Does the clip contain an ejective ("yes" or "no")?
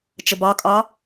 yes